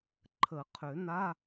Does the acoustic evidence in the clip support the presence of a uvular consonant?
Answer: yes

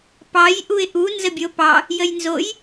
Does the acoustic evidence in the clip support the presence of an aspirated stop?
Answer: no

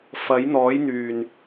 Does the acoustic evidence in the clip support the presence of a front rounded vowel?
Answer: yes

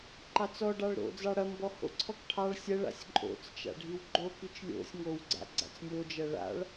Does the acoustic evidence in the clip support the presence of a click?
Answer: yes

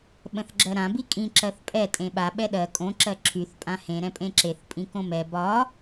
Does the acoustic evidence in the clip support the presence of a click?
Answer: yes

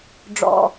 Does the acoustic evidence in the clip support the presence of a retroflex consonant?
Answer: yes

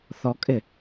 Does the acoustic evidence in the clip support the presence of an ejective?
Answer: yes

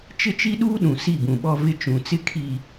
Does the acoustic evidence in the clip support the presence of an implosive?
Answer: yes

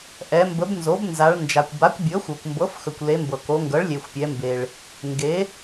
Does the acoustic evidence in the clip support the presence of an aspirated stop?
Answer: no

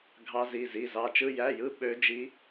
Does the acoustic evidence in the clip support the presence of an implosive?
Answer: yes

